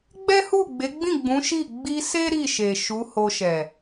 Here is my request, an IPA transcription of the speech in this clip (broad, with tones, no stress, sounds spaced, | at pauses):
ɡ͡b ɛ˦ h u˦˨ ɡ͡b e˨˦ ɡ͡b ĩ˦˨ ɡ͡b ũ˨˦ ʃ i˦˨ ɡ͡b i˧ s e˦ ɾ i˦˨ ʃ e˨ ʃ u˨˦ h o˧ ʃ ɛ˨